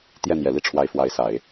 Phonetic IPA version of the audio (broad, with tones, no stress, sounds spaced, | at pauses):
t̪ j ɛ˥˩ n̪ j ɛ˨˩ l i˥˩ ʈ͡ʂʰ w a˧˥ ɪ̯ f w a˧˥ ɪ̯ s a˨˩˦ ɪ̯